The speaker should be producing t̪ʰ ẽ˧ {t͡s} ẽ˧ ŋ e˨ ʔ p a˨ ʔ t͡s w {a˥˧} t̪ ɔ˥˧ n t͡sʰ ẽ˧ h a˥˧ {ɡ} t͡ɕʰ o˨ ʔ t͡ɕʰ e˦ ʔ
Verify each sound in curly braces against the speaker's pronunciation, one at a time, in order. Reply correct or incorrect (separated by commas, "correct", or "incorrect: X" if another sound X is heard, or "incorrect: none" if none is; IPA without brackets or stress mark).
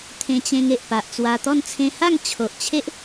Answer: incorrect: t͡ɕ, incorrect: a˧, incorrect: ŋ